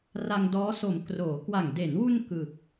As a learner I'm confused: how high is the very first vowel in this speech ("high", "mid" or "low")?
low